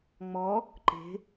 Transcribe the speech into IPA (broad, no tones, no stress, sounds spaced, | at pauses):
ŋ͡m ɔ | ǃ e̤